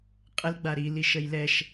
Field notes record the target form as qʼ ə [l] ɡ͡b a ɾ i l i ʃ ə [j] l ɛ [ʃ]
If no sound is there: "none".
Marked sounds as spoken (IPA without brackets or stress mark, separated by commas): l, j, ʃ